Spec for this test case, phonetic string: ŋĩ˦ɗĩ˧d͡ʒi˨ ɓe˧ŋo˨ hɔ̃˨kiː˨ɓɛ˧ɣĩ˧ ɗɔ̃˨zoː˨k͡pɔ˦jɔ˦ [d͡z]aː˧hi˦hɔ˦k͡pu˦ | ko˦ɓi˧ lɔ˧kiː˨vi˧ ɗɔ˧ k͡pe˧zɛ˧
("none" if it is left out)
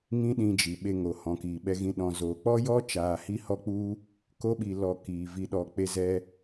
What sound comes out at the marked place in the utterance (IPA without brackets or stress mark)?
t͡ʃ